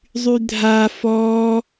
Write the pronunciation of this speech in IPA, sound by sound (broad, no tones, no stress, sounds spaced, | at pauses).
zˤ y dʱ a f ɔ